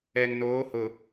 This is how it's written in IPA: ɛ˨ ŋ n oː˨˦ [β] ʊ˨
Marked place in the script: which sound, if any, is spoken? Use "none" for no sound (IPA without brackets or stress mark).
h